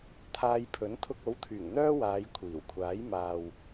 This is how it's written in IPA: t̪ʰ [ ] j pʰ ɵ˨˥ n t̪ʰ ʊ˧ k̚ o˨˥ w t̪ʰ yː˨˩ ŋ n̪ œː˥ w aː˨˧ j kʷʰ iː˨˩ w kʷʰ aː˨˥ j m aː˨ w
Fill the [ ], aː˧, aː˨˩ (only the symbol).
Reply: aː˧